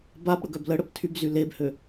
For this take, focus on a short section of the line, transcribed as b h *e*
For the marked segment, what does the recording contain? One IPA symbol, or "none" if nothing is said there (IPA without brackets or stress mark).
ø